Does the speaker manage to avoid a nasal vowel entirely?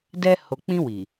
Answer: no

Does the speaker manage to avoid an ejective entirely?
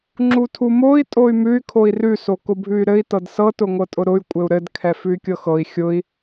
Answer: no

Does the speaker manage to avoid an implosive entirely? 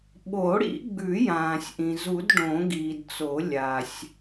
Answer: no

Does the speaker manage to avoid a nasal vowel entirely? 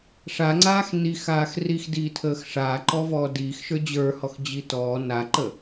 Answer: yes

